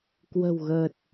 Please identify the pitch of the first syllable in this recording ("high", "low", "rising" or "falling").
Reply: low